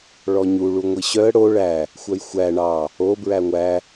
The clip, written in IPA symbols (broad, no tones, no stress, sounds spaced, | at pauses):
ɭ ɔ ɲ u ɭ u ŋʷ i ɕ œ ə̯ ɽ o ɭ æ | xʷ œ j xʷ æ ɳ ɑ | o b ɹ æ ŋʷ æ